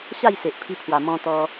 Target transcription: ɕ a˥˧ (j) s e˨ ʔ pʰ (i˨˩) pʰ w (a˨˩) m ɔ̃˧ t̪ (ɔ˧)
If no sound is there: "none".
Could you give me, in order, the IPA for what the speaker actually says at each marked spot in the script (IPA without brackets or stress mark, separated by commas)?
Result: j, i˧, a˨˩, ɔ˧